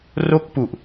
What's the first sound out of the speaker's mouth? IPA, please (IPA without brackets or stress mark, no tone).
r